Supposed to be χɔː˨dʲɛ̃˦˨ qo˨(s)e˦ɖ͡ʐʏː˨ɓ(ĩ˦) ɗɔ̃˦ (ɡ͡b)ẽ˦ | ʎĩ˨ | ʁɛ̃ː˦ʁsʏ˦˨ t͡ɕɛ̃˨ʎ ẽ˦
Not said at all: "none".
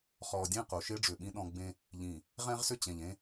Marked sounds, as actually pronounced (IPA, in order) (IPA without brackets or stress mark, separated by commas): ʃ, ĩ˦, ɡ͡b